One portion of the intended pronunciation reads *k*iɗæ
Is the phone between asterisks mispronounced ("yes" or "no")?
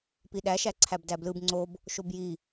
yes